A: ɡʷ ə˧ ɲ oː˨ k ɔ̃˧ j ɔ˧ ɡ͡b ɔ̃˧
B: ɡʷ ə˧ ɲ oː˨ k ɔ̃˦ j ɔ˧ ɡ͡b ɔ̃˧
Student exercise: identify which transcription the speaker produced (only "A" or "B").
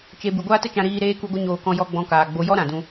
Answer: A